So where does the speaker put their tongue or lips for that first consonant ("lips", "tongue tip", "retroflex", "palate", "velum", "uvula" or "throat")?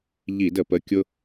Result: palate